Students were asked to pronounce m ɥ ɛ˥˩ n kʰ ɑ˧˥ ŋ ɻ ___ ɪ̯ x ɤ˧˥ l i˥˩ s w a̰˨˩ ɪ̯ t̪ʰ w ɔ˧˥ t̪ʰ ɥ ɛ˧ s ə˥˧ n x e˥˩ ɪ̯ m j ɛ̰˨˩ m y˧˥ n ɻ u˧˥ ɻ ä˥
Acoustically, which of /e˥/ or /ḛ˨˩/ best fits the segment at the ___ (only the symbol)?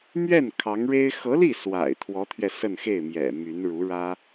e˥